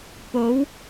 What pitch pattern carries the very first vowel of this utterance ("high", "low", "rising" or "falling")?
rising